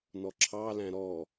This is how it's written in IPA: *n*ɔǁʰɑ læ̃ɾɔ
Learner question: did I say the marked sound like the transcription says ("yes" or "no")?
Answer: yes